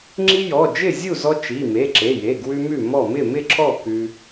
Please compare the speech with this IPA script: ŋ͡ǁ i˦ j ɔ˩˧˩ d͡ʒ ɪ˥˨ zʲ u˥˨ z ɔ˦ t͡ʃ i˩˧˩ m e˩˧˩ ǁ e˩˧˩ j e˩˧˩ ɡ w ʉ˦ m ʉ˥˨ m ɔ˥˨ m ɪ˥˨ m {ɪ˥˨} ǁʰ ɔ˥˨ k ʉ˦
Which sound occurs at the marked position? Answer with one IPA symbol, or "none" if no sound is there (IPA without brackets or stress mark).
ɪ˥˨